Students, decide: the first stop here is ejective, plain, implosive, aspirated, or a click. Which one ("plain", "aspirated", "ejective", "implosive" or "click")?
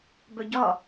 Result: plain